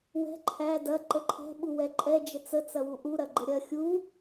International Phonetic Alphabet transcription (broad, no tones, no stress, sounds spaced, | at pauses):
w ɛ̤ ǃʰ æ d ɐ ǃ ə ǃʰ ɛ̤ ɓ u w ɛ ǃʼ ɛ d͡ʒ ə t͡s ə t͡s ɐ w u ʔ u ɾ ɐ ɡ͡ǃ ə ɾʲ ɐ xʲ u